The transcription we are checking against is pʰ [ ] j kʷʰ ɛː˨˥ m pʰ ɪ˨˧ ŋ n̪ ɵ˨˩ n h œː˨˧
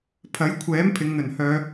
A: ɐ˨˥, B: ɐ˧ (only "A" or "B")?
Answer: A